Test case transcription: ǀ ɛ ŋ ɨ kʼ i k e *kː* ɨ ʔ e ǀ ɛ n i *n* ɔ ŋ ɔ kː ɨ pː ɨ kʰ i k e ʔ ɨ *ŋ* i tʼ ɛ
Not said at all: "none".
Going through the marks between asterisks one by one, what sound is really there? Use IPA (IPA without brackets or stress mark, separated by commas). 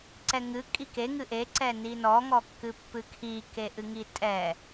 ŋ, n, ŋ